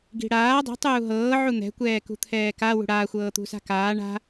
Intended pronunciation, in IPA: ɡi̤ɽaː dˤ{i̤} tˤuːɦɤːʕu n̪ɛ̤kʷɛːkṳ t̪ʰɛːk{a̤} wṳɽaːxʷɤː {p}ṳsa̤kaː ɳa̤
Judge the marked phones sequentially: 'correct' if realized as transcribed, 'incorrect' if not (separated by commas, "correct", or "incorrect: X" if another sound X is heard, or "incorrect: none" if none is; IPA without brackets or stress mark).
correct, incorrect: a, incorrect: t̪